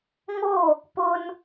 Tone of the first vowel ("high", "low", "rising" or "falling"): falling